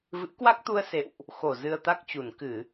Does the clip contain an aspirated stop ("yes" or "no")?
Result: no